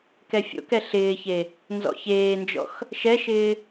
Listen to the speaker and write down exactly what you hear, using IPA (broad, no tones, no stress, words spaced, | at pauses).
kɛfʲo̰kɛ ɬɪːçe | nzɔ̰çeːnd͡ʒɔ̰x | ʃɛʃɪː